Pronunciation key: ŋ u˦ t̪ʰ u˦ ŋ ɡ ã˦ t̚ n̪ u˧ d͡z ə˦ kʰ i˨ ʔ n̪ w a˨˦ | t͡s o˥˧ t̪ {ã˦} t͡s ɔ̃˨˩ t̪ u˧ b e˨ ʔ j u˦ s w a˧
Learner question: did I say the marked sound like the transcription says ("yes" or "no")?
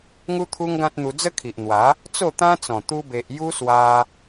yes